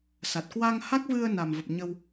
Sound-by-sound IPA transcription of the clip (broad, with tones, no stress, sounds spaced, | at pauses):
s a˨˩ t̚ k w a˧ ŋ h a˦˥ k̚ v ɨ˧ ə̯ n a˨˩ m v ə˨˩ p̚ ɲ ə˧ w